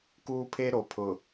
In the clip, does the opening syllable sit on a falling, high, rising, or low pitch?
high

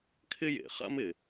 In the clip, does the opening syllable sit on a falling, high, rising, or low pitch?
high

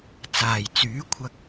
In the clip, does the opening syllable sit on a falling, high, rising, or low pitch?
low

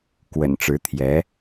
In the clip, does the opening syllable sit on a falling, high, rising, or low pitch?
low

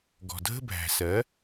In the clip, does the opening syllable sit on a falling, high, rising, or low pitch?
low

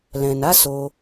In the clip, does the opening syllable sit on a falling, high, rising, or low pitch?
low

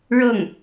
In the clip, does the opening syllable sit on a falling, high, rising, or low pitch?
falling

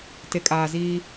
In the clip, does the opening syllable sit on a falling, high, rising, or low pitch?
low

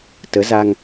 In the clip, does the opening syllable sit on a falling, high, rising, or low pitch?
rising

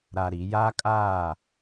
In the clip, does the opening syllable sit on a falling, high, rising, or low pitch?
low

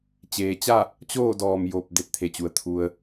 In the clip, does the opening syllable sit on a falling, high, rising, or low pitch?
low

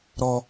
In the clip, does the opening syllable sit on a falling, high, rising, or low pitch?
low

